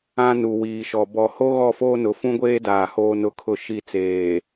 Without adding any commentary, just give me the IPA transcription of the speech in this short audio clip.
ã˦ n u˨ w iː˨ ʃ ɔ˨ b ɔ˨ h o˦ ɣ ɔ˦˨ f oː˦ n ʊ˨˦ f ũ˦ ɡʷ eː˦ d aː˨ h oː˦ n ʊ˦˨ kʰ ʊ˦˨ ʃ i˦˨ t͡s eː˨

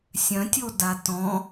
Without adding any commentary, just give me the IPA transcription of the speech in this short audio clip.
sʲ œ̃ tʲ o d a t ɔ̃

